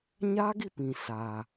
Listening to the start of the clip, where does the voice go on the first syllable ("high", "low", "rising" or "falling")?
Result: high